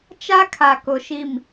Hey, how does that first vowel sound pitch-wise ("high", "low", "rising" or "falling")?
high